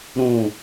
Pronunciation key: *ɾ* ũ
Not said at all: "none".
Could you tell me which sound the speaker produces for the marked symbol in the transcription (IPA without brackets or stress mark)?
ɾ